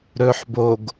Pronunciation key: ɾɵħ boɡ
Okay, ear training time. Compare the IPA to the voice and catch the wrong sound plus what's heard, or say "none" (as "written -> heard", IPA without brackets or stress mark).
none